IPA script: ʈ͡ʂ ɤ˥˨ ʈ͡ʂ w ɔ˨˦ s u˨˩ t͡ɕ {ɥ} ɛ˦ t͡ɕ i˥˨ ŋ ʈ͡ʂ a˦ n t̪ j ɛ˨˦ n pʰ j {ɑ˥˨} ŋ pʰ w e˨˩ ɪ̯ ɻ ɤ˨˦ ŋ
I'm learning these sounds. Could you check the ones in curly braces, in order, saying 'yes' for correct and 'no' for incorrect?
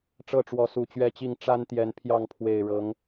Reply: yes, yes

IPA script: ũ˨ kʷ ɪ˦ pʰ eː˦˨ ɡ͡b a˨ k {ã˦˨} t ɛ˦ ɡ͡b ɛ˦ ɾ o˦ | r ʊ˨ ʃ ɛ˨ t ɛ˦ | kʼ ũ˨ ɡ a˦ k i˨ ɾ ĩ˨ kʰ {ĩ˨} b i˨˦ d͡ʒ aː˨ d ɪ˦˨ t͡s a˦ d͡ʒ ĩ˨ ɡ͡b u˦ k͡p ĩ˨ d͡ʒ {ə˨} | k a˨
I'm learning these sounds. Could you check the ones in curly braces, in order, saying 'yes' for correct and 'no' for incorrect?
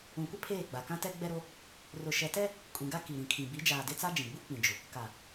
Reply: no, yes, no

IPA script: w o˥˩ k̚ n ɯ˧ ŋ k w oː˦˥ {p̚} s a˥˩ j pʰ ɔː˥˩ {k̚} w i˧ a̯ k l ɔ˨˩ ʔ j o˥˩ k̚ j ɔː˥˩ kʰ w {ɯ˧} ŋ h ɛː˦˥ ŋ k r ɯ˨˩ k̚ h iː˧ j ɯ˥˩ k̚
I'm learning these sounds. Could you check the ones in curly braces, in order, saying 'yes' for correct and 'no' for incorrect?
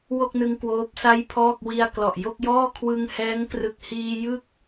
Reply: yes, yes, yes

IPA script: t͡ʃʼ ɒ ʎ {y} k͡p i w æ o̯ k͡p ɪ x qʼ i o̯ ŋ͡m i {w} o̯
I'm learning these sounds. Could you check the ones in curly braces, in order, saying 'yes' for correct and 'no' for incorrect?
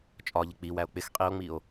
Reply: no, no

